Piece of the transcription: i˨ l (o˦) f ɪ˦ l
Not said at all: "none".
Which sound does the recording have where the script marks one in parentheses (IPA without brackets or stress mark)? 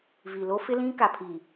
o˦